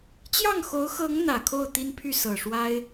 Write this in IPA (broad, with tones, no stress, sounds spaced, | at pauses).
t͡ɕ j ɑ˥˩ ŋ x o˧˥ ʊ̯ x ɤ˧˥ ŋ n̪ ä˨˩ kʰ o˥˩ ʊ̯ t̪ i˥ n pʰ y˥˩ s ɤ˨˩ ʂ w a˥ ɪ̯